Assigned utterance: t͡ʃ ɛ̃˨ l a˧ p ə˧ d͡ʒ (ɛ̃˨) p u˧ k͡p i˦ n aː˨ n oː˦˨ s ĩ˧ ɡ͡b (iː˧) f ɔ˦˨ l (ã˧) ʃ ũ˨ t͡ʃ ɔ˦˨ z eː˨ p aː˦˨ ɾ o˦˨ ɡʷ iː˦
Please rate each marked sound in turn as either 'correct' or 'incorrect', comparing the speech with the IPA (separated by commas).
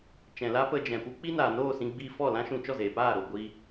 correct, correct, correct